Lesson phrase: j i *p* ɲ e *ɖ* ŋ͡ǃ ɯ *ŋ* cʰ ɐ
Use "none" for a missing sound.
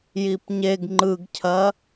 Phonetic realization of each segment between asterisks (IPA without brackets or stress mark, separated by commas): p, ɡ, ɡ